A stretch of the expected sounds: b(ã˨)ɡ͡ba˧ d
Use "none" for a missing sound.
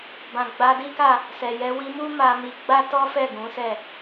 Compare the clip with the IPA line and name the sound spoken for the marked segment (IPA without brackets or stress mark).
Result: ã˨